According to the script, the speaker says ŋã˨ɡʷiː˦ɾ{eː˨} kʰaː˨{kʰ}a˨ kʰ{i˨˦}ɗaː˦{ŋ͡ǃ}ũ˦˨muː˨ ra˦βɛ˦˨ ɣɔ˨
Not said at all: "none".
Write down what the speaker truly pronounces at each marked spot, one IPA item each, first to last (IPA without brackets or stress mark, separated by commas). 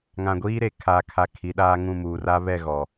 e˨, kʰ, i˨˦, ŋ